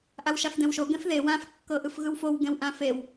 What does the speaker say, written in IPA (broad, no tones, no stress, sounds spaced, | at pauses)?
ʔ a w ʃ a f d ɛ̃ w ʃ o ɡ ɛ̃ f ð e w ã f kː ɤ ʔ ɯ f ɣ ɯ w f o w ɡ ɛ̃ w ʔ ã f e w